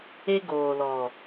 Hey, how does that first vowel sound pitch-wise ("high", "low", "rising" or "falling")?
high